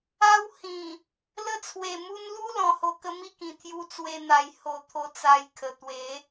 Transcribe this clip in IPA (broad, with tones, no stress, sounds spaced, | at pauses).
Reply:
a˧ w h ĩ˨˩ | l ə˧ t͡sʰ w e˨˩ m u˧ n l u˦ l ɔ̃˧ h o˧ k ə˦ m i˥˧ k ĩ˨˩ t̪ʰ j u˧ t͡s w e˧ n̪ a˨˩ j h o˧ t̪ʰ o˧ t͡s a˧ j kʰ ə˨˩ t̪ w e˨˦